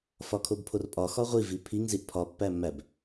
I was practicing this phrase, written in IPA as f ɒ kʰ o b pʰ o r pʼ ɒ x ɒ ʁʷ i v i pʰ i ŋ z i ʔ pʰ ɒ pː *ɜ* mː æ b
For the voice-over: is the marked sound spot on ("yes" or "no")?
no